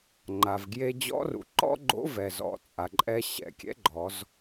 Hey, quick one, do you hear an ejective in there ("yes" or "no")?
yes